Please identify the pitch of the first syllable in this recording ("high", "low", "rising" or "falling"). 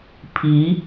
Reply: rising